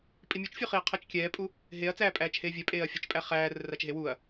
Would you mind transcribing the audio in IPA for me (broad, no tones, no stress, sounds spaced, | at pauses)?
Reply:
pʼ i mʲ u t͡ʃ fʲ u χ i ɐ̯ qʰ a t͡ʃ kʲ ɛː pʼ u | ɦ e ɐ̯ t͡s æː pʼ æː t͡ʃ h eː vʲ ɛ pʼ eː ɐ̯ fʲ ə t͡ʃ pʼ æ χ æː r ə r a t͡ʃ ɦ e w u ɐ̯